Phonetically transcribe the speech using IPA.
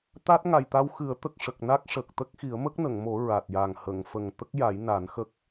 t̪ a˦˥ t̚ ŋ a˨˩ j t̪ a˧ w x ɨ˨˩˦ ə̯ t̪ ə˨˩ k̚ ʂ ə˨˩ k̚ n a˦˥ k̚ ʂ ə˨˩ k̚ t̪ ə˦˥ k̚ x i˨˩˦ ə̯ m ə˦˥ k̚ n ə˨˩˨ ŋ m o˨˩˦ ɹ a˨˩ t̚ j a˨˩ ŋ h ə˨˩˨ ŋ f ə˨˩ ŋ t̪ ə˦˥ k̚ j a˨˩˦ j n a˨˩˦ n x ə˦˥ k̚

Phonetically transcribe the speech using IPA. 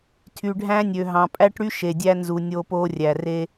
tʰ y˨ ɖʱ æ̃˦ nʲ ø˨ ɦ ɑ̃˨ pʼ æ˦ ʈ ɽ y˦ ʃ e˨ dʲ æ˦ n z u˨ nʲ oː˦ p oː˦ rʲ æ˨ r e˦

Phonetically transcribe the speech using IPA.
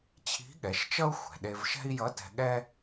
t͡ɕʰ i̤˧˥ ɠ ɛ˩˧ ʃ t͡ʃ ʌ˥ u̯ xʷ ɛ̤˩ ɗ e˧ v ʃ ɛ̤˥ i̯ j ʌ˧˥ t ɛ̤˧ ɠ ɛ˥

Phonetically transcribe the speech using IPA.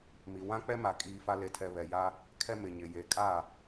m i˨ w ã˦ k͡p ɛ˦ m a˨ kʼ iː˦ f a˦ l e˨ tʰ ɛ˨ β ɛ˨ j a˦ | kʰ ɛ˦ m ɪ˨ ɲ ɪ˨ j e˨ kʼ a˦˨

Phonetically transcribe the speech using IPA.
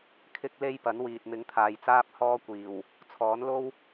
kʰ ɪ˥ k̚ l e˥ j p ɐ˨˥ n w iː˨ t̚ m ɪ˨˥ ŋ t̪ʰ aː˨ j t͡s aː˥ p̚ h ɔː˥ kʷ iː˨˩ w | t͡sʰ ɔː˨˥ n l o˥ w

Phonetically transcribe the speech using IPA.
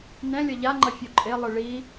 n ɛ̃ lʲ ʌ ʎ a ŋ͡ǃ ʌ fʲ u ǃʼ e lˠ ɯ ɭ i

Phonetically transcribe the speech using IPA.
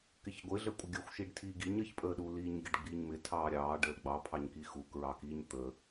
k ɪ ç ɡʷ ɪ ɮ ə kʷʼ ɪ ɡʲ ə xʷ ʃ i ɖ tʰ iː ɡ i ɲ ə ç pʼ əː ɗ u l iː ɲ ɡʲ ə ɖ ɡ͡b iː ɲ m ɪ tʰ ɑː ɾʲ ɑː ɖ əː l ɡ͡b ɑ pʰ ɑ ɲ k i x u k ɹ ɑ k iː ɲ t̪ ə

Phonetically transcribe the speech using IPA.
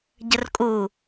ɟ ə r kʼ u

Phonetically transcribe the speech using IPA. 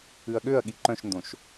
ʉ ɐ̯ ɠ ø ɐ̯ ɠ i ǃ œ̃ ʃ n d õ ʃ

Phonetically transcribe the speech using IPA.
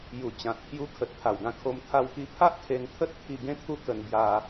j u˨˩ t͡ɕ ã˨ t̚ pʰ j u˧ kʰ ə˨ t̚ t̪ʰ a˨˩ w ɡ ã˦ kʰ o˧ m t̪ʰ a˧ w k i˧ pʰ a˦ ʔ kʰ e˧ n t̪ʰ ə˦ t̚ t̪ʰ i˧ ɡ ẽ˦ t̪ʰ u˦ k ə˧ n b j a˧

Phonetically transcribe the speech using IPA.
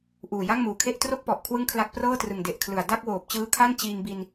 ʔ uː˨˩ j a˥˩ ŋ m uː˨˩ kʰ e˥˩ ʔ t r o˥˩ k̚ p ɔ˨˩ ʔ kʰ w ɯ˥˩ ŋ kʰ l a˦˥ k̚ p r ɤː˥˩ t r ɯ˨˩ ŋ d e˨˩ ʔ kʰ l ɯ˨˩ a̯ d a˥˩ k̚ w oː˨˩ p̚ t͡ɕ ɯː˦˥ kʰ a˥˩ n t͡ɕ iː˧ ŋ b i˧ n

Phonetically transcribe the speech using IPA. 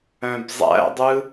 œ̃ b zˤ æ̰ dˤ ɯ

